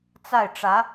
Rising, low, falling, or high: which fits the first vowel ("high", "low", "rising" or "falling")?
falling